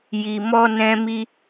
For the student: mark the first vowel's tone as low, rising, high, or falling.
low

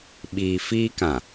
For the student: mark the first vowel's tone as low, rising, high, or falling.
low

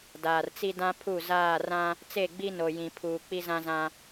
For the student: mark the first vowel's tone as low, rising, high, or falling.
low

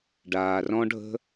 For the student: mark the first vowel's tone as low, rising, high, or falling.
low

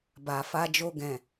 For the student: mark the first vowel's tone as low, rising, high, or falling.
low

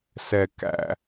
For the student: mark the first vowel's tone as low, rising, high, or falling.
low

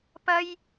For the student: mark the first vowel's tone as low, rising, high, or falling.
high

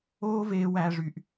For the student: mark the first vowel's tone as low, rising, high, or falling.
high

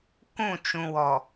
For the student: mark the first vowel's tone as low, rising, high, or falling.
falling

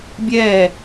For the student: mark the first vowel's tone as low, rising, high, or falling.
falling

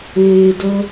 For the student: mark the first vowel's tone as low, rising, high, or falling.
low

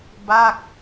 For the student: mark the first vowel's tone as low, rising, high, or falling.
falling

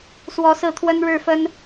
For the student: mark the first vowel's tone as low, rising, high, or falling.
rising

